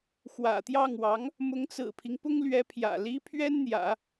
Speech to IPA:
xwä̰˨˩t̪jɑ˥˩ŋwɑ˧˥ŋ | mʊ˧˥ŋt͡sɹ̩˨˩pʰi˦ŋ pʊ˥ŋlɥɛ˧˥pʰjä̰˨˩ li˥ pʰɥɛ˥nn̪jä̰˨˩˦

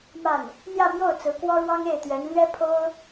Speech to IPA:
ma˥˩n | n̪jä˥˧mjo˥˩ʊ̯ t͡sɹ̩˧˥kwɔ˥ɻwɑ˥ŋ e˥˩ɪ̯t̪ɥɛ˧˥nlɥɛ˥ pʰo˥ʊ̯

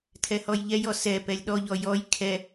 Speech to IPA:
tʰɛhɔjʎɛjɔ sɛ pɛlʲɗɔʎɔ jɔj kʰɛ

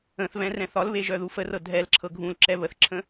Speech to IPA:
ə̃θvɛ̃rɛ̃θ ɒlβeʒœðu fərɤ dʱɛlǁʰɤ ɡʱũlǁɛ βəθǁʰə̃

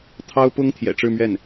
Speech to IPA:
t̪ʰɑ˥ʊ̯pʊ˥ŋ t̪ʰjɛ̰˨˩ʈ͡ʂɻ̩˥˧mɥɛ˥˩n

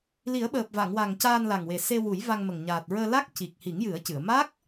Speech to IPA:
li˨˩˦ə̯ɓəː˨˩p̚va˨˩˨ŋwa˨˩ŋ caː˧nla˨˩ŋwe˨˩ se˧ wu˨˩˦jva˧ŋmə˨˩ŋ ɲaː˨˩t̚ɹəː˧la˦˥k̚ ci˨˩k̚ hi˨˩˦ŋjɨ˨˩˦ə̯ cɨ˨˩˨ə̯ ma˦˥k̚

